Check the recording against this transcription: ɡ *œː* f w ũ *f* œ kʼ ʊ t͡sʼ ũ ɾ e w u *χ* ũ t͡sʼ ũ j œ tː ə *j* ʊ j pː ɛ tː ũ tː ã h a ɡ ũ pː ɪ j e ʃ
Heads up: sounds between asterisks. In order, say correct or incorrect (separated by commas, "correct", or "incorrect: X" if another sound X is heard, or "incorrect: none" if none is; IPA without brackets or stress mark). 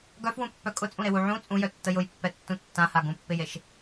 incorrect: œ, incorrect: pː, incorrect: ʕ, correct